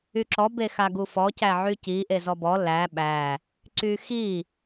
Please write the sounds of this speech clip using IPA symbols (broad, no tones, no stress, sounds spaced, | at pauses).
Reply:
y ǁ ɔ b e x a ɡ u f ɔ c æ ʕ y c i ʔ e z ɔ b ɔ l æ ɓ æ | ǀ y x i